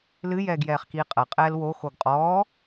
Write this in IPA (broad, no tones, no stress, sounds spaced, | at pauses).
l ɨ j ɛː ɡ j ɛː χ k iː qʼ ɐ qʼ ɛː l w o x o ɡ qʼ ɔː